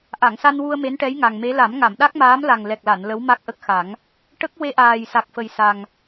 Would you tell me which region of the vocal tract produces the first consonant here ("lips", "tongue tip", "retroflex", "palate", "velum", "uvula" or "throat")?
throat